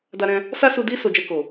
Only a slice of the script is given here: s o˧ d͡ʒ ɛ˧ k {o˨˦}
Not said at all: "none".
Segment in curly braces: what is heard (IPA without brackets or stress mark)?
o˨